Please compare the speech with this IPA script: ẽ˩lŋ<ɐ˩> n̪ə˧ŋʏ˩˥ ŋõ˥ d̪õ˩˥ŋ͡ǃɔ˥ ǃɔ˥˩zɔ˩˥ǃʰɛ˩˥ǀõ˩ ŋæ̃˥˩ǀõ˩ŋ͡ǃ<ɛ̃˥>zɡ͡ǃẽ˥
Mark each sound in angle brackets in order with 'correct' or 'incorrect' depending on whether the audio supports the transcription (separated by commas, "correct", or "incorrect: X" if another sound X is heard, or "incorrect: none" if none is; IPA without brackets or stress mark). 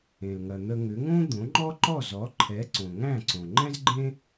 correct, correct